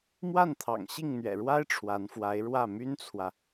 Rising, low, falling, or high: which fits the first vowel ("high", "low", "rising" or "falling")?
falling